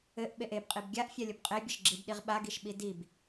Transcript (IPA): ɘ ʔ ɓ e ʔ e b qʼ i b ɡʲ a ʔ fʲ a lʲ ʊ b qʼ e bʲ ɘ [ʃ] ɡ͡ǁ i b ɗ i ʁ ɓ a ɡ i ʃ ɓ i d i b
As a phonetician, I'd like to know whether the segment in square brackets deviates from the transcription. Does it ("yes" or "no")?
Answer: no